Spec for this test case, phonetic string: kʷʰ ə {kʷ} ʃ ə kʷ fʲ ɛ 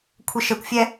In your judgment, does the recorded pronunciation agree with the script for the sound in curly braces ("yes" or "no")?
no